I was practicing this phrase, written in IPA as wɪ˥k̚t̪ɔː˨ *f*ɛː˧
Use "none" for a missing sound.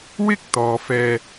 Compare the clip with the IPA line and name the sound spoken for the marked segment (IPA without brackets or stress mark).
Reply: f